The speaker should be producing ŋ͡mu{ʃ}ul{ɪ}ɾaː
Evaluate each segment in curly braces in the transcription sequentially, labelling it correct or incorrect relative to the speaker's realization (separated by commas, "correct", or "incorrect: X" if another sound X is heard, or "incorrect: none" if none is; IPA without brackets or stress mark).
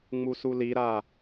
incorrect: s, incorrect: i